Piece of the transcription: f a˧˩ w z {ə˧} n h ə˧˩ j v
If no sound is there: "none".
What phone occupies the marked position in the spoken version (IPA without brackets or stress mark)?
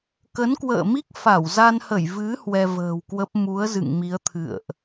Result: a˧